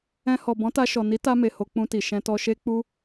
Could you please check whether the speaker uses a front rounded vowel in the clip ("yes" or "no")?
no